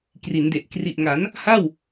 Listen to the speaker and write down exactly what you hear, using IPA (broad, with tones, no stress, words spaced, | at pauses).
kri˩˦nde˨˩ʔ kri˨˩ʔŋa˩˦n | ha˥˩w